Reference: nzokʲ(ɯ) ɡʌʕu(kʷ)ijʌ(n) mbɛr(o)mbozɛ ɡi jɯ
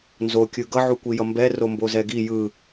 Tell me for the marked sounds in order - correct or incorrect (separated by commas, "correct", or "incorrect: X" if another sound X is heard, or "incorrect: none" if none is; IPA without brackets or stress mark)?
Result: correct, correct, incorrect: none, correct